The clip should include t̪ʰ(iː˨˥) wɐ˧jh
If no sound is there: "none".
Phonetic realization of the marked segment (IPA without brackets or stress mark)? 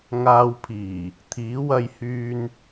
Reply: iː˨˥